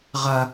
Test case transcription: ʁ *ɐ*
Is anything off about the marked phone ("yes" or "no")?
no